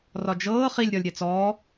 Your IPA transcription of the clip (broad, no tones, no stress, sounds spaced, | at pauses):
r ɒ d͡ʒ ɤː χ i lʲ ɾʲ ɒ lʲ ɾʲ ɛ t͡s ɔː